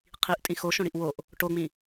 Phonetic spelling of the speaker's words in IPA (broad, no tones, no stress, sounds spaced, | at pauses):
qʰ i ʔ tʼ ĩ x o ʃ õ ɽ i ʔ w o ʔ | ʈ o ŋ͡m ĩ